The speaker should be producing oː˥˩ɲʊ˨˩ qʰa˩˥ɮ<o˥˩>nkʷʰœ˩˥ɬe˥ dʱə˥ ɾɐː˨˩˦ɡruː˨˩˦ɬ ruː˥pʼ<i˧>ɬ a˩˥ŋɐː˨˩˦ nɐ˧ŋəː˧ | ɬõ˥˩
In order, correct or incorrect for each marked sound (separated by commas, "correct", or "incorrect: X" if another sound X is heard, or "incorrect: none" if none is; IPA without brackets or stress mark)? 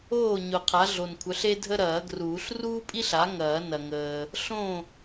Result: incorrect: o˨˩, incorrect: i˥